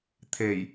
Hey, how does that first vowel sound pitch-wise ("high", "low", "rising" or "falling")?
low